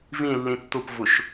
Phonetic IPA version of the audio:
v ĩ lː ĩ t t̪ ʊ p v ʊ ʃ

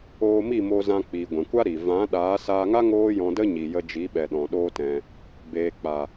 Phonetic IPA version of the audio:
oː˧ m i˦˨ m o˧ z ã˧ k͡p i˨ ɡʷ ɛ̃˨ kʷ a˦ ɾ i˨ v ã˨˦ ɗ aː˨˦ s aː˧ ŋ a˦ ŋ oː˦ j ɔ̃˧ d ə˦ ɲ i˨ j ə˧ d͡ʒ i˨˦ ɓ ɛ˨ ɗ ɔ̃˨ ɗ oː˦ t ɛ̃˧ | b eː˨ k͡p a˨

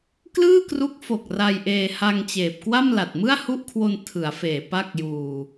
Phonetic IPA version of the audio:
k l ɯː˥˩ k r u˦˥ k̚ f o˨˩ k̚ r a˧ j ʔ eː˧ h a˧ ŋ t͡ɕ eː˨˩ p̚ k w a˥˩ m l a˨˩ t̚ m ɯ˥˩ a̯ h u˥˩ ʔ kʰ w o˧ n tʰ ɯ˩˦ a̯ f eː˨˩ p a˥˩ k̚ j uː˧

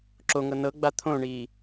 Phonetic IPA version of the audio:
ǁ o ŋ ɤ n ɤ ɡ͡b a t̪ʰ õ ɳ iː

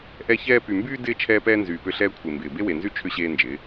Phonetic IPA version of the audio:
ʔ ɛ˦ ç ɛː˦ p y˨ m b yː˦ d ɪː˦ t͡ʃʰ ɛː˦ p ɛː˦ n z yː˨ p ʏ˦˨ ɬ ɛː˦ kʷʰ e˨ m b ɪː˨ b e˦ w e˨ n z y˦ t͡ʃʰ ʏ˦ ɕ eː˦ n d͡ʒ ɪː˨˦

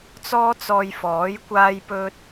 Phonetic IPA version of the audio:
t͡s ɔː˥ t͡s ɔː˧ j f ɔː˨˥ j kʷ aː˥ j p ɵ˥ t̚

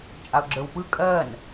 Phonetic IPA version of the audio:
t͡ʃʼ a ʊ̯ ɡ͡ǁ ə˞ w p ɯ kʼ ɜ n

